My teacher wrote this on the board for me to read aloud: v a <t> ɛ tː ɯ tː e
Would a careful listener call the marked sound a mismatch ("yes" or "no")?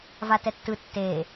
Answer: no